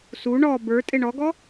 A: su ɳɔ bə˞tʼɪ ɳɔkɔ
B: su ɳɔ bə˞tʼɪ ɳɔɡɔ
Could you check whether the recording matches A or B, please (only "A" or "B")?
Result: B